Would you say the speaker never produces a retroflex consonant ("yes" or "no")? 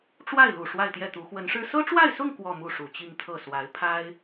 no